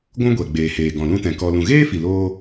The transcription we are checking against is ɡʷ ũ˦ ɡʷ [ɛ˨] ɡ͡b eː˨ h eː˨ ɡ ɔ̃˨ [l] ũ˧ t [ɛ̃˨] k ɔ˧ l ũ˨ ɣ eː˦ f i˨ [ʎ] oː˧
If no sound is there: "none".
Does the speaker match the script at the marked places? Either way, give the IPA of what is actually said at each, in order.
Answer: ɛ˨, l, ɛ̃˨, l

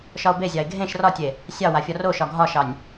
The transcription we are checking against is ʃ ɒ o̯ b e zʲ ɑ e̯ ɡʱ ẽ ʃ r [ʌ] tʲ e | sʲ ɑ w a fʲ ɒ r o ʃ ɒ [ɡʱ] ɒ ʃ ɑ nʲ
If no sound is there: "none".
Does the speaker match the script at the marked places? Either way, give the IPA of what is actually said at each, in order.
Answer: ɒ, ɡʱ

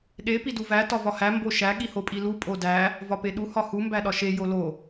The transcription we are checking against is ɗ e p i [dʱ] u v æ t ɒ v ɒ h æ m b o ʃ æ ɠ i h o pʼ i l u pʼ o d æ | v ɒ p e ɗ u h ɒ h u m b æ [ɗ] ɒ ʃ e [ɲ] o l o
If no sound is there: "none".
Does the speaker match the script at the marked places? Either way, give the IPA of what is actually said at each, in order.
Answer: d, ɗ, j

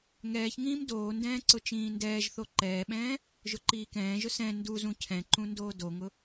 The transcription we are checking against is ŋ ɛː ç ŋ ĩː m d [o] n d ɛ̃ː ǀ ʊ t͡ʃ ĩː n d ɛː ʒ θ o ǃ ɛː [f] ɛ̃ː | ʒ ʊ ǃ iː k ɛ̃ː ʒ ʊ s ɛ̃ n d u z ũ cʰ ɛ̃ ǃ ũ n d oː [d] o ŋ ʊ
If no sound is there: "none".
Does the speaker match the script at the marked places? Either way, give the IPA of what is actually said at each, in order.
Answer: oː, ɓ, d

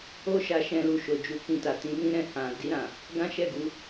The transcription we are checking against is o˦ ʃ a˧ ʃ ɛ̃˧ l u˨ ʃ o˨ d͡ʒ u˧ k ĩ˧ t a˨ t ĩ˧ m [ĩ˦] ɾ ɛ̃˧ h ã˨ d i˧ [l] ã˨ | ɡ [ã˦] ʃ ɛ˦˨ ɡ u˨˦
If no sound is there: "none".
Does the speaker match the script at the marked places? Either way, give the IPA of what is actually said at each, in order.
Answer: ĩ˦, ɾ, ã˦

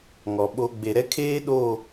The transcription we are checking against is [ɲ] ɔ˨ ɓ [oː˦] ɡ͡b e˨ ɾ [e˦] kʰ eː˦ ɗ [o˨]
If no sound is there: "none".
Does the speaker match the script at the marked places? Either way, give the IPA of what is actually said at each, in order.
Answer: ŋ, o˦, ɛ˦, o˦˨

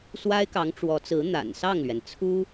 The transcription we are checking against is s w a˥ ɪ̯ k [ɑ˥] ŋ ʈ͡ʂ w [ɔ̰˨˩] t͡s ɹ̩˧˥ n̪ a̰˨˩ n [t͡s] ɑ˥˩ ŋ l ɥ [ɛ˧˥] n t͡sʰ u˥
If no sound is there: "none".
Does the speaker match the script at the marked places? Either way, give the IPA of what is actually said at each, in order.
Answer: ɑ˧˥, ɔ˧˥, s, ɛ˩

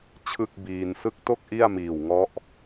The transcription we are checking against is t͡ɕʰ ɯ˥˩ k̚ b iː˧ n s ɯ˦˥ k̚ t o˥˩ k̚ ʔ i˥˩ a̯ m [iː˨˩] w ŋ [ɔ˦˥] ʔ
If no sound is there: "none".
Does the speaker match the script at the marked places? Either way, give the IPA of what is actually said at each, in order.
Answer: iː˨˩, ɔ˦˥

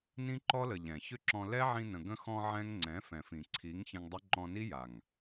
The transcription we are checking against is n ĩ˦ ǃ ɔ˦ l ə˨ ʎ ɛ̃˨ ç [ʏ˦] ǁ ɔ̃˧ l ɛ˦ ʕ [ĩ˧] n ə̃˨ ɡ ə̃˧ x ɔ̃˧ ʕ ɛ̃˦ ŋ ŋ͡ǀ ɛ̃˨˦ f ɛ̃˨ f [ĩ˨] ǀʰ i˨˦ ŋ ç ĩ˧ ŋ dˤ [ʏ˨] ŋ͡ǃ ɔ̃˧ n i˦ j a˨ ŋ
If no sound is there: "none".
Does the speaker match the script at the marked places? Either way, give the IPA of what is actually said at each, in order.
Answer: ʏ˦, ĩ˧, ĩ˨, ʏ˦

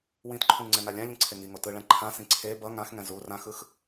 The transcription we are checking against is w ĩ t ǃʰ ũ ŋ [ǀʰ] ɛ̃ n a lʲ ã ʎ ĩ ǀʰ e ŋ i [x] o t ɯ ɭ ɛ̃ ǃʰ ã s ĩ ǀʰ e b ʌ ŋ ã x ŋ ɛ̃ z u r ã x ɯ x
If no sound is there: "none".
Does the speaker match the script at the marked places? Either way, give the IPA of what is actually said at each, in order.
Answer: ŋ͡ǀ, ŋ

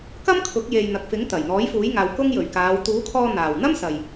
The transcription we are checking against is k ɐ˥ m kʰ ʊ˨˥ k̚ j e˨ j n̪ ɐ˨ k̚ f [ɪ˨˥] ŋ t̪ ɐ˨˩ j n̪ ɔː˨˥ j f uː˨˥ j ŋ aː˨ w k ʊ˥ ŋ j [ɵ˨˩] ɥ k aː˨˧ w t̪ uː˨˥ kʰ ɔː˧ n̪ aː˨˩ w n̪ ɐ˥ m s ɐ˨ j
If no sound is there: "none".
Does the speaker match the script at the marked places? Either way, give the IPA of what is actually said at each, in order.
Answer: ɪ˨˥, ɵ˨˩

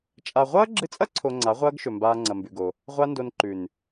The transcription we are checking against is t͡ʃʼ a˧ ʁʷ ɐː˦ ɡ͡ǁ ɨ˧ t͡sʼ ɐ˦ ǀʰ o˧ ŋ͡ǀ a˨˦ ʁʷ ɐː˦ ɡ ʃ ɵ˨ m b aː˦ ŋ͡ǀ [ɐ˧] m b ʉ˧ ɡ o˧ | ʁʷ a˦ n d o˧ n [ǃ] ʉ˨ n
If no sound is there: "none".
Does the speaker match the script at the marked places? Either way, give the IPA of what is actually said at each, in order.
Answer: ɐ˧, ǃ

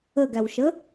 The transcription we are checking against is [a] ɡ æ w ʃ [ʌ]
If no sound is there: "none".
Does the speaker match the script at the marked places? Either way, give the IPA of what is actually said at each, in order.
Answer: ə, ə

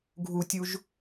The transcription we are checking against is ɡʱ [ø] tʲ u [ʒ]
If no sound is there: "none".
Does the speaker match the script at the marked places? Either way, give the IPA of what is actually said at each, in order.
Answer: u, ʒ

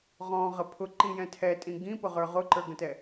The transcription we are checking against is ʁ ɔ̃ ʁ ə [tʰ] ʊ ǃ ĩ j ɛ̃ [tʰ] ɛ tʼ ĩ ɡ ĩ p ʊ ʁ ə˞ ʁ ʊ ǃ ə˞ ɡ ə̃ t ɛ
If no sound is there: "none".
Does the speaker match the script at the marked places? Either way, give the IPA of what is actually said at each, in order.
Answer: pʰ, tʰ

